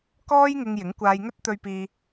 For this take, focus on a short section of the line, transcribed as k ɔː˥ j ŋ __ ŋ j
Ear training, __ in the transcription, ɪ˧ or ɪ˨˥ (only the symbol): ɪ˧